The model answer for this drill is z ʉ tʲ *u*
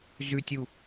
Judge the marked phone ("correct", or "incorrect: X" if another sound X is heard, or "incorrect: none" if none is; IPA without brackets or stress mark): correct